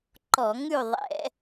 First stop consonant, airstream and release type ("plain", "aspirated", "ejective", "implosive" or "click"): click